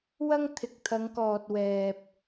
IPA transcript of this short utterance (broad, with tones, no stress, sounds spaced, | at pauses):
w ɐ˥ ŋ t̪ʰ ɪ˨ k̚ t̪ʰ ɐ˨˧ ŋ k ɔː˨ t̚ w ɛː˨ p̚